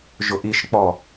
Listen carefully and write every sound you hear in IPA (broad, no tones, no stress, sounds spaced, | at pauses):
ʒ ʊ ʔ i ʃ k͡p ɔ